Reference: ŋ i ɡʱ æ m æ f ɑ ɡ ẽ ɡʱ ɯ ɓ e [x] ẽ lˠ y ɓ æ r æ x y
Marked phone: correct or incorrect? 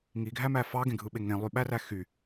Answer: incorrect